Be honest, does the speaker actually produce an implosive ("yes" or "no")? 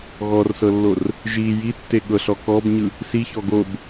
yes